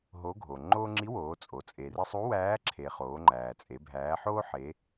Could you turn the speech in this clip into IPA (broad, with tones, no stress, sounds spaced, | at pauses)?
ɦ o˧˥ ɡʱ o˩ ŋ͡ǃ o˥ ŋ͡ǁ i˧˥ w oː˩˧ t͡sʼ o˩ t͡sʼ e˩ r i˧ sˤ u˧˥ w æː˧˥ ǁʰ e˩ χ oː˩˧ ŋ͡ǃ æː˩ t͡sʼ e˩˧ bʱ æː˩˧ ħ oː˥ ħ e˩˧